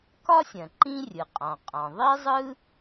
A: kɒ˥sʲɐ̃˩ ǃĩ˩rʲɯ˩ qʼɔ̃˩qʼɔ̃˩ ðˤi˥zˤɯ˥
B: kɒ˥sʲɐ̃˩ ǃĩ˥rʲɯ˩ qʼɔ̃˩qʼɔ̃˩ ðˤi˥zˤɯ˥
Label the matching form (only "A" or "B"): B